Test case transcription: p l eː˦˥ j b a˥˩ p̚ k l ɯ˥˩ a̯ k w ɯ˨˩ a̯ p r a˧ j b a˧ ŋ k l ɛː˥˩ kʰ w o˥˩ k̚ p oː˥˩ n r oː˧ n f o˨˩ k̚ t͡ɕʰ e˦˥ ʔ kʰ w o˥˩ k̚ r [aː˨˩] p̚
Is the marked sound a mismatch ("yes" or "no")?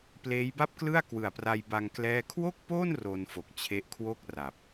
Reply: yes